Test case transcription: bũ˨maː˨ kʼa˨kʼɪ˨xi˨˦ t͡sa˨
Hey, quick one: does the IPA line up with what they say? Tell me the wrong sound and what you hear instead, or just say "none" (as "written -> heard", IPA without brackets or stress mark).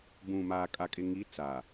x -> ŋ